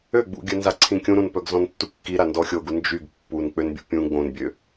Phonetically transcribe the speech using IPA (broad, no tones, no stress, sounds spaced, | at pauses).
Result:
ø ɡ͡b ṵ ɡʲ œ n z a ǀʰ ĩ kʲ ũ ɾ ũ n p œ ɡ z ɔ̃ n tː u kː i ɾ a n d ɔ xʲ o ɡ u n d͡ʒ y ɡ pː u n k͡p ø n bʲ ṵ pʲ ũ ɡ͡b õ n bʲ ø